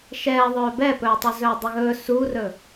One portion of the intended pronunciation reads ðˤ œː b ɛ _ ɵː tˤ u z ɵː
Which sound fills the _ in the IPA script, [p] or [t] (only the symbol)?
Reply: p